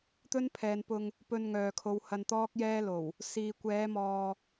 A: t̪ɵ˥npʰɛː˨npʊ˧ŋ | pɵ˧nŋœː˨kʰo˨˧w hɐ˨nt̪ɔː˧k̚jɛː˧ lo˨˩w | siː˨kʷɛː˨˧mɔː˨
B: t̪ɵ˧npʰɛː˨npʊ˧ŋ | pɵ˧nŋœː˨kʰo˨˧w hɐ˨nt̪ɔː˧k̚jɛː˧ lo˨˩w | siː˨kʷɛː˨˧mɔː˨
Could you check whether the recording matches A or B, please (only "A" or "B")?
A